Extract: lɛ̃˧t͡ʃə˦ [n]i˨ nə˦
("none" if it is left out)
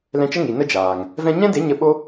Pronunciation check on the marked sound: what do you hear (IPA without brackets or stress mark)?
ŋ